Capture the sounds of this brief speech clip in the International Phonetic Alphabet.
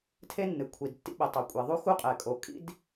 tʰe˥nːɨ˩kʷʰi˩d tːḭ˥ɓɛ˩ tˤo˩kʷʼe˩ðˤu˥xu˥ qʼɛ˩kʼo˩kʼḭ˥d

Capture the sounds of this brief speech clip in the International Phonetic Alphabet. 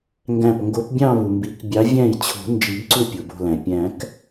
ŋɡæ̃˧˩p ŋɡo˨˦pbʲɑ̃˥˧ βu˩mbi˨˩˦k bʲɑ˨˦ vʲæ̃˥˩jt͡ɕʰo̤˨˩˦ nd͡ʒi˨˩˦bǀu˥˩ pʲo˩bo̤˧˩læ̃˩ pʲæ̃˨˩˦k

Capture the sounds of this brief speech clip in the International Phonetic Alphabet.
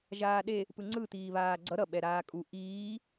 ʒaːɗe | pɯŋ͡ǀɯ t̪iːβaːɡ͡ǀʌ ɾʌ ɓɛɾaːkʼu ʔiː

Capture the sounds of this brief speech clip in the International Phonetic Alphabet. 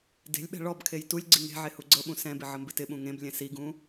de̤lʲɓɛ̤ ɭɔbkʰej tulʲ ɡ͡ǀiŋe̤ʕe huɡ͡ǀɤɓũ sɛ̃bɪ ʕəmbɪtɪɓũ ŋẽblʲɛ̃ siɡũ

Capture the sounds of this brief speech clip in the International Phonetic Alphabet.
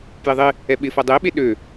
pjɪðˤɪ | ɛɓɪ fɐdˤe ɓeɗø

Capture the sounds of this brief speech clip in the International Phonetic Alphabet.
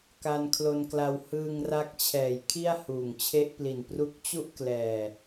ka˧nkʰlo˧nkla˧w hɯː˧ŋra˦˥k̚t͡ɕʰɛː˨˩j kʰi˥˩a̯huː˨˩ŋt͡ɕʰe˦˥ʔpli˨˩n pru˦˥k̚t͡ɕu˥˩ʔ klɛː˨˩

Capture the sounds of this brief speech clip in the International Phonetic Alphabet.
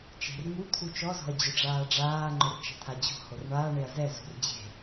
t͡ʃe̤r ŋu t̪ʰut͡ʃɔzɔ̤ɐ̯ d͡ʑʊɖ͡ʐaːɖ͡ʐaːŋ͡ǃʊr t͡ʃa̤t̪ʰad͡ʑo̤hor ɳaː ɳeɐ̯zɛzṳr d͡ʑe̤

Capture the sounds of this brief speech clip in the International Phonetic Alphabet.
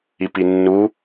ipinːu

